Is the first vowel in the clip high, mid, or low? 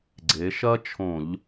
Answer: mid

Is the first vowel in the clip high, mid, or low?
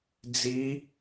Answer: high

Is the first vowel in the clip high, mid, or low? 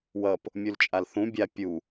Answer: mid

